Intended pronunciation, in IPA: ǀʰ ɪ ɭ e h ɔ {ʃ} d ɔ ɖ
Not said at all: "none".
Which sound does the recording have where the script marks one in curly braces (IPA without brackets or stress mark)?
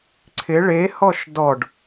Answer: ʃ